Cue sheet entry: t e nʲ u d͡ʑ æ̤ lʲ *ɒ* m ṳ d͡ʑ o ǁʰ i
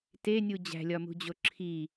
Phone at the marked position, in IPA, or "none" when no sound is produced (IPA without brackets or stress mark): ɒ